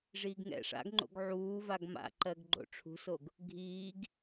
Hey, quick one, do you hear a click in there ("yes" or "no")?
yes